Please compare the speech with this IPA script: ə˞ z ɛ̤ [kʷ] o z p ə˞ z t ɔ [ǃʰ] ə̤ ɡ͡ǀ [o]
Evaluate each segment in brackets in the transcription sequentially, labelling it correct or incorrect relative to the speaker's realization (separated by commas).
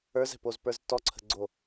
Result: incorrect, incorrect, correct